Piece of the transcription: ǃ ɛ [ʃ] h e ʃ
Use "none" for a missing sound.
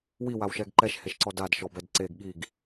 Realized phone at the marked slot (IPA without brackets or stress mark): ʃ